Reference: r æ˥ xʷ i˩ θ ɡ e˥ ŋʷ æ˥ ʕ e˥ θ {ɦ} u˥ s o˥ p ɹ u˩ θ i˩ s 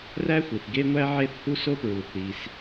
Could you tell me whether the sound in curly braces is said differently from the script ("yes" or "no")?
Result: yes